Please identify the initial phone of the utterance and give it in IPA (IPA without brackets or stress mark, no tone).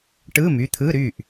ʈ